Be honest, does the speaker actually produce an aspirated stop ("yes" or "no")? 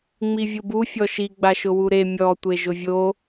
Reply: no